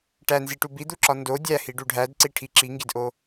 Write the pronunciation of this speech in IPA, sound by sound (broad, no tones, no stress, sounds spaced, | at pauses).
ʈ æ n z i ʈ u b i d̪ u ǁ ɒ n d o dʲ æ h i ɖ u ɖʱ æ d ǀ i ʈʰ i ǁ i ŋ ɡ i d ʔ o